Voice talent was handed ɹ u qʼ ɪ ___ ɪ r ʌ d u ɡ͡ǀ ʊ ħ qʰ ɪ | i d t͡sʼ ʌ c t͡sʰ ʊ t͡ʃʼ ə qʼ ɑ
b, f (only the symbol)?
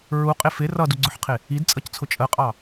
f